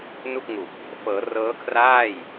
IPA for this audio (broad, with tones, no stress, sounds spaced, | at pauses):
n u˥˩ k̚ ŋ u˨˩ k̚ | f ɤː˩˦ r ɤː˦˥ kʰ r aː˥˩ j